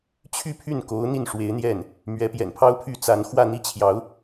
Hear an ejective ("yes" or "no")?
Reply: no